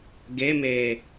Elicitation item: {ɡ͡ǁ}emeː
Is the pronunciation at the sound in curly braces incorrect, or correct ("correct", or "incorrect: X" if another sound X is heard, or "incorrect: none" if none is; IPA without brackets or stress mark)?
incorrect: ɡ